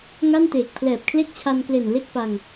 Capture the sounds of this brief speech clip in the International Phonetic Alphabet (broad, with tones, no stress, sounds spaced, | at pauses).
ŋ a˥˩ n t eː˨˩ k̚ pʰ l ɛː˨˩ p̚ kʰ l e˥˩ k̚ t͡ɕʰ a˧ n k l e˨˩ n l e˥˩ k̚ p a˧ ŋ